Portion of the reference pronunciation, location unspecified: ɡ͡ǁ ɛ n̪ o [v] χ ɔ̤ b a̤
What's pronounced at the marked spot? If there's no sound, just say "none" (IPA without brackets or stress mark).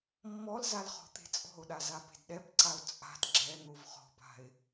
v